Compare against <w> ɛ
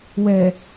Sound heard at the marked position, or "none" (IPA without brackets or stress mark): w